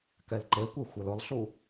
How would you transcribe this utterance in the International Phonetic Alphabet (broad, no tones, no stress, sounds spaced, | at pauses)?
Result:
k ɛ l ǃ e kʷ e xʷ e l ʊ lˠ ɬ u